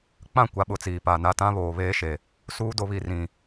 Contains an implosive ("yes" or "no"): yes